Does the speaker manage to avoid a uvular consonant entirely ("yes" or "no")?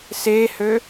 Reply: yes